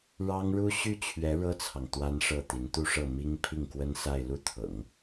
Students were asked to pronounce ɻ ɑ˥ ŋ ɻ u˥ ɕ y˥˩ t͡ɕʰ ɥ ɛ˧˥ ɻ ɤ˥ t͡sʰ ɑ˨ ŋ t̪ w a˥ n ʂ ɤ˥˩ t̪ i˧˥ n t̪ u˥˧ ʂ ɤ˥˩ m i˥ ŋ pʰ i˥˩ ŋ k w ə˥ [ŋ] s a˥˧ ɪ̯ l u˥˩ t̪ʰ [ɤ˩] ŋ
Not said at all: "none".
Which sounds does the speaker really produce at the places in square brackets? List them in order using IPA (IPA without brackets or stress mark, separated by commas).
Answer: n, ɤ̰˨˩˦